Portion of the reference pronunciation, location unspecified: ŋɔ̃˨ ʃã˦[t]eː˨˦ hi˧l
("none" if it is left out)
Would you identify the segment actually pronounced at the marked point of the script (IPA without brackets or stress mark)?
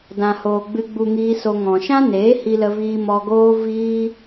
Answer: n